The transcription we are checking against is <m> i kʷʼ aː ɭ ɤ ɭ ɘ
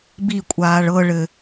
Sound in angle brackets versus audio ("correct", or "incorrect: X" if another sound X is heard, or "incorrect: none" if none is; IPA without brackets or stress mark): incorrect: b